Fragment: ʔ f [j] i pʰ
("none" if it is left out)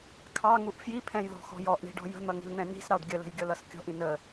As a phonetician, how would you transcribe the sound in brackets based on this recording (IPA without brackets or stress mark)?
j